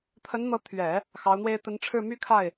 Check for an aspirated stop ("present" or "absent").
present